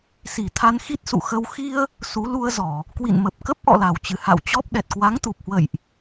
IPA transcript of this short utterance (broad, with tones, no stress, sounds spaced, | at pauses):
s i˧˩ t̪ʰ a˧ n x i˦˥ t̚ s ṵ˧˨ x ə˧ w x i˧ ə̯ | s u˨˦ l u˧ ə̯ z ɔ˧˩˨ | k w ḭ˧˨ n m ə˨˩ p̚ k ə˦˥ p̚ ʔ ɔ̰˧˨ l a˧˩ w t͡ɕ ɨ˧˩ h a̰˧˨ w t͡ɕ ɔ˦˥ p̚ ɗ ɛ˨˩ t̚ k w a˨˦ ŋ t̪ u˨˩ p̚ h w ə̰˧˨ j ʔ